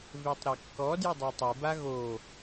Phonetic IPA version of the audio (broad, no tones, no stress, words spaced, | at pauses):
vetˤɾekːɔ djədˤatˤɪ baɣo